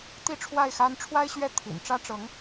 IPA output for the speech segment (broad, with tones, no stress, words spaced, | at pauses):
t̪i˥˧ʈ͡ʂʰwa˥˩ɪ̯xa˥n ʈ͡ʂʰwa˥ɪ̯ɕɥɛ˥˩ t̪ʰḭ˨˩n ʈ͡ʂä˥ʈ͡ʂɤ˧˥ŋ